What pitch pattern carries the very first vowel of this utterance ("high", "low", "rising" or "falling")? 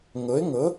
rising